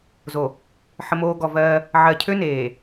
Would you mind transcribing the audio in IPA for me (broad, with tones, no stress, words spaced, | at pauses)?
zo˨ | ħə˨moː˨ ɡɔ˨vɜː˦ | ʕɜ˨cʰø˦neː˨